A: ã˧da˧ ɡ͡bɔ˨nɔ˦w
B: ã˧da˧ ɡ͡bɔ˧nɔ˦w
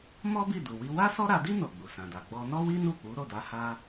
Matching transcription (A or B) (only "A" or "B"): B